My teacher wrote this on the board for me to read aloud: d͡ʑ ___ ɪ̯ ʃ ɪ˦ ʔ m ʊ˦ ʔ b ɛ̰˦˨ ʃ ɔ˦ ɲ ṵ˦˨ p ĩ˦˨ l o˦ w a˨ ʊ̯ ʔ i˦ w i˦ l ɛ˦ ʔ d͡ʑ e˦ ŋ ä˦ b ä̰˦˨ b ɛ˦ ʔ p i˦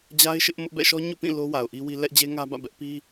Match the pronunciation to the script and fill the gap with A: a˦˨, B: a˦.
B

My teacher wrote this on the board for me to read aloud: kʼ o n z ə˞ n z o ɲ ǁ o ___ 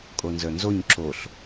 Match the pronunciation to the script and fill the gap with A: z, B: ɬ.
B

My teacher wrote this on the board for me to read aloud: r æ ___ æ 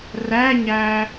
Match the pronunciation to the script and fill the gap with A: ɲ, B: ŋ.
A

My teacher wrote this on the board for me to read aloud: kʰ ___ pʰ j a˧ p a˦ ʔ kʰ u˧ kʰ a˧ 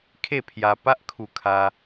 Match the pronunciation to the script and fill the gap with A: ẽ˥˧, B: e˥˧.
B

